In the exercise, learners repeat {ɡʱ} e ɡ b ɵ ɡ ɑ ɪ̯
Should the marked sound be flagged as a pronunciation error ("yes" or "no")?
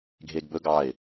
no